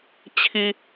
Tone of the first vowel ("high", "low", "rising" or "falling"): low